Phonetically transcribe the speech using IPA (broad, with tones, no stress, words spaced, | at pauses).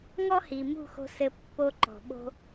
ŋɔ˦hi˨mṳ˦˨xo̤˧ sɘ˧ pːo˧ǃɔ̤˨ ɓo̤˧